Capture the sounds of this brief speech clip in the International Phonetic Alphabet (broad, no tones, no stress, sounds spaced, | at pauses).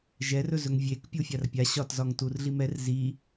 ʒ ɛ r ɵ z ɵ ŋ vʲ e k pʲ u fʲ a r pʲ a ɕ ɒ t z ɒ ŋ t u r ɮ i m ɛ r z i